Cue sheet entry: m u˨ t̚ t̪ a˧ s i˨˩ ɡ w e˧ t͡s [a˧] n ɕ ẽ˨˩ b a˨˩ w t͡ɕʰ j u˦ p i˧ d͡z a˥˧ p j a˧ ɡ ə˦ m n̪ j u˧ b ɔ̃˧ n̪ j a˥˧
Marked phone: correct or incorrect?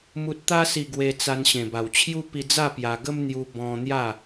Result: correct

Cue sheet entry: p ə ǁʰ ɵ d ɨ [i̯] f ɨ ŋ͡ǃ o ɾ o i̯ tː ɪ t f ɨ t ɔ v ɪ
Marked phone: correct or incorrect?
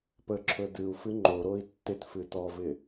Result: incorrect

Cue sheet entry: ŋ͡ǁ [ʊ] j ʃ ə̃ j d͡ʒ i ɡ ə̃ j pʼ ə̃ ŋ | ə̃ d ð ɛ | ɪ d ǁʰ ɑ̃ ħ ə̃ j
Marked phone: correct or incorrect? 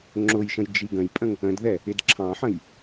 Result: correct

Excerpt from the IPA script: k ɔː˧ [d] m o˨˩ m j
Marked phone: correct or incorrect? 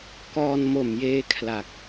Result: incorrect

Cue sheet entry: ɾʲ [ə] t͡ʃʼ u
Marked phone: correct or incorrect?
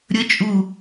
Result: correct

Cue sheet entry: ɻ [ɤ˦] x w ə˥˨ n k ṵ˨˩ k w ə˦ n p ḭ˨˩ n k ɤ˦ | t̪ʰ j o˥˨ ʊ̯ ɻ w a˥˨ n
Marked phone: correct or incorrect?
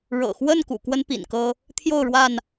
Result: incorrect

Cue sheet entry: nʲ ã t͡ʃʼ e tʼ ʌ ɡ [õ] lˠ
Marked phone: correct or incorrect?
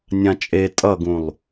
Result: incorrect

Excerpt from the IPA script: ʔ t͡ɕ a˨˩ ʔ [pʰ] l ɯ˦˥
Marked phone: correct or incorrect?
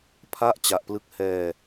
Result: incorrect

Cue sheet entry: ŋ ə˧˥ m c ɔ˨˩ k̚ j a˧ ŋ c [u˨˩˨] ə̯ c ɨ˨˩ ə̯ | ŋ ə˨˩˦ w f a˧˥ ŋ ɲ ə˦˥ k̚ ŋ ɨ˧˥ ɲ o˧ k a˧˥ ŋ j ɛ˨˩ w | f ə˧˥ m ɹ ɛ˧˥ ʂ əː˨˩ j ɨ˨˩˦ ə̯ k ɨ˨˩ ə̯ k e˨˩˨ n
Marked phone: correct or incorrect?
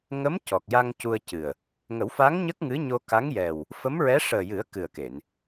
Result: incorrect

